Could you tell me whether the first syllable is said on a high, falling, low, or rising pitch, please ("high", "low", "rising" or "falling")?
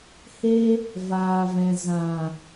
high